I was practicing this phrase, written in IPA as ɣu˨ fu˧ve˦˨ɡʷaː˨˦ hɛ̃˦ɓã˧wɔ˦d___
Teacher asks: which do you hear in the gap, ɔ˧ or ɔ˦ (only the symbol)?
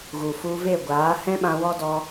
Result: ɔ˧